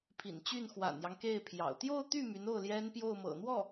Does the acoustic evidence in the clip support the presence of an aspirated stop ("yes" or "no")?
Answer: yes